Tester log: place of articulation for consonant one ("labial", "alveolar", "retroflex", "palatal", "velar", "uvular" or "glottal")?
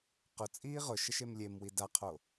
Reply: uvular